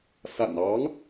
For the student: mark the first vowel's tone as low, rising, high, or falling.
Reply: low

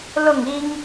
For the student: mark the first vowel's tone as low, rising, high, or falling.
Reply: falling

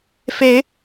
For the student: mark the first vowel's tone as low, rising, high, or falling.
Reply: rising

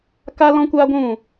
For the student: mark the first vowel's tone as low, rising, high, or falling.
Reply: high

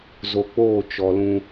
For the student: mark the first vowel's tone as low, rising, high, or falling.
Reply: low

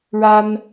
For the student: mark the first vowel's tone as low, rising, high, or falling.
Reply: high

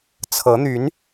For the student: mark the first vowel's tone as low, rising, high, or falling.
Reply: rising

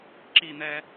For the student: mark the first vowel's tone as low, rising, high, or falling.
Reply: falling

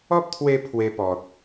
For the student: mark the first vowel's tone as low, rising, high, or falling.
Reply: high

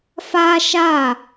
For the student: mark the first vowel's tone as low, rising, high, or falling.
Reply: high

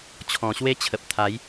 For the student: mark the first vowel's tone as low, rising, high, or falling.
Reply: low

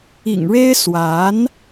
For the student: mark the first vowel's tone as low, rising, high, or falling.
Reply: low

